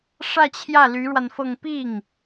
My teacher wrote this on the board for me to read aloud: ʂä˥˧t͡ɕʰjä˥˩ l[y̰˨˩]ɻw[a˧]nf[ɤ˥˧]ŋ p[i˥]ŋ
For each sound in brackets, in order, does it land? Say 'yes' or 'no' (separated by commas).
no, yes, yes, no